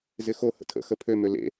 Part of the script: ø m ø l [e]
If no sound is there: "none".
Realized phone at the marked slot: ḛ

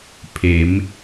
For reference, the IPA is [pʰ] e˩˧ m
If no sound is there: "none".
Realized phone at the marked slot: pʰ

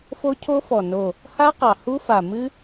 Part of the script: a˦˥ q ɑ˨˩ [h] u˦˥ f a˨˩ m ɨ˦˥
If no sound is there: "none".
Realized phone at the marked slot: h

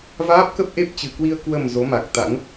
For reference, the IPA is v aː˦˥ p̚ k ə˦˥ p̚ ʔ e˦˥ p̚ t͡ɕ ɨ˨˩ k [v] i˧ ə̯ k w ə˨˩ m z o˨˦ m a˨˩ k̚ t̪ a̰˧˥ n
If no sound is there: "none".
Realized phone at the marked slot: w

